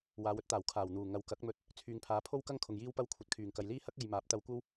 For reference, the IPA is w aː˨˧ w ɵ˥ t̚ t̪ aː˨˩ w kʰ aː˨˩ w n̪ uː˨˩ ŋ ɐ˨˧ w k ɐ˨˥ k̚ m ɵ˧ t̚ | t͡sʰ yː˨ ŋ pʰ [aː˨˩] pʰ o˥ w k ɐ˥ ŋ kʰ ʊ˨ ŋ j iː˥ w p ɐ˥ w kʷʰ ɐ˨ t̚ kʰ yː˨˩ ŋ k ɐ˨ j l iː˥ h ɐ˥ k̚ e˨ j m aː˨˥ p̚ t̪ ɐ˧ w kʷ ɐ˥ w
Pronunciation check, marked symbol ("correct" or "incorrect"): incorrect